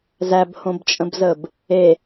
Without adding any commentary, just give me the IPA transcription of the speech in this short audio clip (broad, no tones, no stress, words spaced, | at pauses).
zæbhõbt͡ʃʼə̃bzəb | e